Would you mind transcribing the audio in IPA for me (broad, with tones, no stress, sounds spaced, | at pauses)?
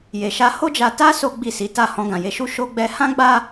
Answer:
j e˧ ʃ a˦ h o˦ d͡ʒ a˧ t a˦ s o˦ ɡ͡b i˦˨ s i˨˦ t a˦˨ h ɔ̃˧ ɡ ã˨ j e˧ ʃ u˦ ʃ o˧ ɡ͡b ɛ˧ h ã˦ ɡ͡b a˦